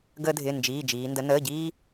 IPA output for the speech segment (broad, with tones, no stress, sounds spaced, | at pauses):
ɡ əː˧ dʱ ɪː˩˧˩ n d͡ʒ iː˩˧˩ d͡ʒ iː˩˧ n d ə˩˧ n əː˩˧˩ ɟ iː˧